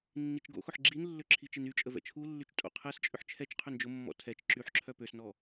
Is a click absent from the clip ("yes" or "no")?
no